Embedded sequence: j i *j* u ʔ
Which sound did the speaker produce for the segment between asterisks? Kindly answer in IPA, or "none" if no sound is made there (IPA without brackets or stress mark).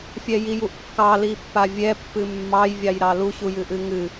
j